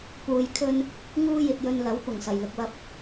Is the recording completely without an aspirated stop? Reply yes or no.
no